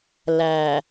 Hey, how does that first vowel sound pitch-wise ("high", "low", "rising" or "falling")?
low